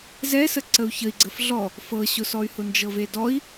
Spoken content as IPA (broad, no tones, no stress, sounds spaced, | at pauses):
z ɛ s ə ǀ ə u̯ ç ə i̯ ɡ͡ǀ ə f ɮ ɔ | f ɤ ɕ ʊ s ɔ y̯ h ʊ n d͡ʒ ɤ v e d ɔ i̯